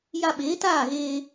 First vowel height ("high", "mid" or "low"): low